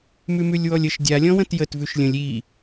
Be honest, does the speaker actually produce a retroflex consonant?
no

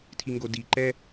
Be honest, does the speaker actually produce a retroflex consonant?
no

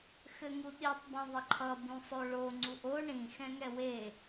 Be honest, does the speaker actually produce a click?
yes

